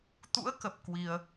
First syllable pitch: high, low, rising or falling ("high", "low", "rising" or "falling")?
rising